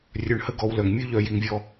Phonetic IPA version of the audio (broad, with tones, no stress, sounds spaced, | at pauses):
rʲ œ˨ ɳ h ə˦ ɡ ɔ˨ w l œ˩ ŋ mʲ ʉ˥ ʎ œ˨ j i˨ ŋ vʲ ɔ˦